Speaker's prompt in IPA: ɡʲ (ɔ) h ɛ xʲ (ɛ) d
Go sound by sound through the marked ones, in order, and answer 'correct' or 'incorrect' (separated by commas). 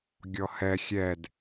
correct, correct